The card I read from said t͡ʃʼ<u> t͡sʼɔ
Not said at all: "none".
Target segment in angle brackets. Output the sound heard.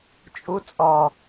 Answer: u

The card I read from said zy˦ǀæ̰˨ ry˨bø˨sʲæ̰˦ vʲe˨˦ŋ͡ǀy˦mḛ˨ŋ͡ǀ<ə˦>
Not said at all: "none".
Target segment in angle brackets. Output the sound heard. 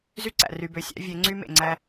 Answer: æ˦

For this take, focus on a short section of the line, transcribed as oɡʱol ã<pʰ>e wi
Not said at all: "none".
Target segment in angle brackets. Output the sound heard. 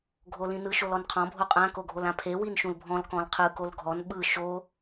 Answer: pʰ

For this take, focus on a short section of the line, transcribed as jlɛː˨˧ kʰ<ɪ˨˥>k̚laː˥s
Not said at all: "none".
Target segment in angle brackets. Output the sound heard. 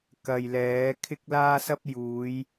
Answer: ɪ˥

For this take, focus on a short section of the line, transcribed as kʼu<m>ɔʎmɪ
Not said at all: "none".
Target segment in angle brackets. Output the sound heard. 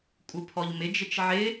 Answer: pʰ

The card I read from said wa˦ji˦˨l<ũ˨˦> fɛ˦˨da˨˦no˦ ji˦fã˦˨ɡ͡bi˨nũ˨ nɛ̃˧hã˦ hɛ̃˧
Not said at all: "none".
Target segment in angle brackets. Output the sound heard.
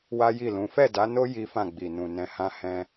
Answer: ũ˨˦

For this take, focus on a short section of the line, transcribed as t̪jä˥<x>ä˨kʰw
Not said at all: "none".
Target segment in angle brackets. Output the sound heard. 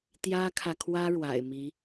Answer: kʰ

